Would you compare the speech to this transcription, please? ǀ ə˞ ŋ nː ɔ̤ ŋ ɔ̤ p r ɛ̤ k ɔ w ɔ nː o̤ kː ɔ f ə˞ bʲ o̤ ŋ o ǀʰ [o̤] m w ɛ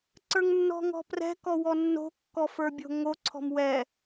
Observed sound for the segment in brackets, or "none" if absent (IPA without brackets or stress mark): ɔ̤